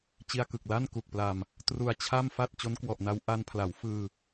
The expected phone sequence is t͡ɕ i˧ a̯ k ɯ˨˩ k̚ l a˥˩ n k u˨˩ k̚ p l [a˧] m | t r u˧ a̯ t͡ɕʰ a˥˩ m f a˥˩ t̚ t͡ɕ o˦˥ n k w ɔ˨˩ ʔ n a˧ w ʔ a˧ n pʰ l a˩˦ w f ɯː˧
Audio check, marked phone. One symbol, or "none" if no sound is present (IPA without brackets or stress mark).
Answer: a˧